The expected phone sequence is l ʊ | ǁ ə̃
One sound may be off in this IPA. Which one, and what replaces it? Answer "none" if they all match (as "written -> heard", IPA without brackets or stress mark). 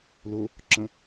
none